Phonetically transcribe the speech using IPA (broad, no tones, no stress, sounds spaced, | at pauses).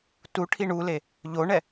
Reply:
t u ʈʰ i ɳ u l e | ʎ o ɳ ɛ